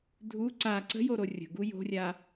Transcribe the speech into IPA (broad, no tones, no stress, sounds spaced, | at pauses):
dʱ u ǀ a ǀ ə̤ j o ɾ o rʲ ə̤ ɡ u j o̤ rʲ a